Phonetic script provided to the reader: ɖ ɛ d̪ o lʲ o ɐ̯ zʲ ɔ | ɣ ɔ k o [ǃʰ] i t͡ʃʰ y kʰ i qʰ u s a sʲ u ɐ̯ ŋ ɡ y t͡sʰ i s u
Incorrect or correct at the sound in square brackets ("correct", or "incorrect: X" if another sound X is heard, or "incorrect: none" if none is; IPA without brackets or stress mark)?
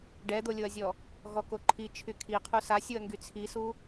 correct